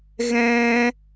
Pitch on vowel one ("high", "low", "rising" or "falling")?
high